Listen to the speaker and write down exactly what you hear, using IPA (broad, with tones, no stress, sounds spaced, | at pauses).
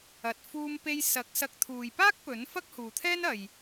ɐ˨ t̚ f uː˧ m p e˧ j s ɐ˨˥ k̚ s ɐ˧ k̚ t̪ʰ uː˨ j p aː˥ k̚ p ɵ˨˥ n f ɐ˥ k̚ h uː˨ t̪ʰ ɛː˥ n ɐ˨ j